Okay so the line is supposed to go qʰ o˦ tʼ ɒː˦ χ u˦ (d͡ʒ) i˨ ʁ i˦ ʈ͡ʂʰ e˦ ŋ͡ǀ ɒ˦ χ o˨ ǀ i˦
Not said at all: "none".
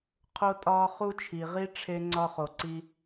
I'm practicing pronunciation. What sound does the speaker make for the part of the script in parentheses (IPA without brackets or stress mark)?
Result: t͡ʃʰ